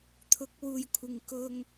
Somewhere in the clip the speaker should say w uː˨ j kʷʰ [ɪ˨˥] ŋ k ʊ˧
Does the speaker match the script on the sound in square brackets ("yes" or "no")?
no